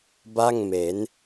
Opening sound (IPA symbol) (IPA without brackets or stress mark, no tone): b